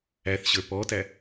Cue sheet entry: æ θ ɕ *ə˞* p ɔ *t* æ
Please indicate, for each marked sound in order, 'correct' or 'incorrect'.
correct, correct

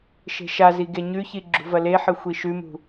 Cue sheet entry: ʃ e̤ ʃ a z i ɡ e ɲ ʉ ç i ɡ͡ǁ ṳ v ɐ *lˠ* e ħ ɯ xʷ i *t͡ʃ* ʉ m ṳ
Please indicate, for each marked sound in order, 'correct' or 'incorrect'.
incorrect: l, incorrect: ʃ

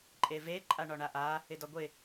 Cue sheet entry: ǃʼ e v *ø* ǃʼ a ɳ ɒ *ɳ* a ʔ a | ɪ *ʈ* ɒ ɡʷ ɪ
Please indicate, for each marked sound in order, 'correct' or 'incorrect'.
incorrect: e, correct, incorrect: d

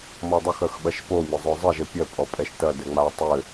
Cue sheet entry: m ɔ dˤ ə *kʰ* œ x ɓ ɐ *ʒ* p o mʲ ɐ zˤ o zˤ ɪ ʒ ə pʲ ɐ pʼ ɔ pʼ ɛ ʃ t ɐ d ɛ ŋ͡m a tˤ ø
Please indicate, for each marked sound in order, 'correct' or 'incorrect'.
incorrect: x, incorrect: ʃ

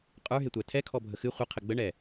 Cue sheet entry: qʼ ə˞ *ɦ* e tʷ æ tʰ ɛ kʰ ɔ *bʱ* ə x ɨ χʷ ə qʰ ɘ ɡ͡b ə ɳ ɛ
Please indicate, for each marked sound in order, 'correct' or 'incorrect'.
correct, correct

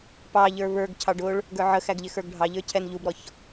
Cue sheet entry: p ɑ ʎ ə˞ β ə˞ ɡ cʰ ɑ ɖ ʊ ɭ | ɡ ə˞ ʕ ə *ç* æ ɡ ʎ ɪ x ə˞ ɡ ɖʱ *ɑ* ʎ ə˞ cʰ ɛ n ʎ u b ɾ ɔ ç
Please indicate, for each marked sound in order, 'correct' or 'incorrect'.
incorrect: x, correct

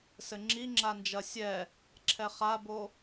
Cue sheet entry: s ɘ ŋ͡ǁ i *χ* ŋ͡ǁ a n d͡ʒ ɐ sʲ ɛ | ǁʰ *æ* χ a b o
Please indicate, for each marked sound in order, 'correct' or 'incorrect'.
incorrect: none, incorrect: ɛ

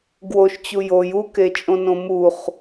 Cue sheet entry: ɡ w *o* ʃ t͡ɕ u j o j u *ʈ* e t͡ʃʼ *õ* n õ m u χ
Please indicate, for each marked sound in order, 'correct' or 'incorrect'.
correct, incorrect: k, correct

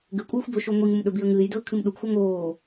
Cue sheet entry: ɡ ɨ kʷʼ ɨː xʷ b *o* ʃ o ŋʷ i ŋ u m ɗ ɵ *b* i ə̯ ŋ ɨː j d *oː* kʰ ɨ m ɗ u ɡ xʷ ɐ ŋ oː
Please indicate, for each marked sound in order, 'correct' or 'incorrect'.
incorrect: ɵ, correct, incorrect: ɵː

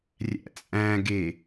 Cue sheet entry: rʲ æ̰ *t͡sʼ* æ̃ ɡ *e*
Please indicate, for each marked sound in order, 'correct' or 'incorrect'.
correct, correct

